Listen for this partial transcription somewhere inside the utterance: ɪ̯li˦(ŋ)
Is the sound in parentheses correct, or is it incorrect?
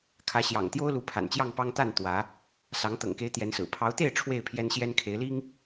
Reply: correct